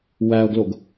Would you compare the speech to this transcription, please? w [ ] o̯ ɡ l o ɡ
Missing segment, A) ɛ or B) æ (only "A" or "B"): B